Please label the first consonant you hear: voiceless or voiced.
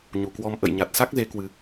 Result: voiced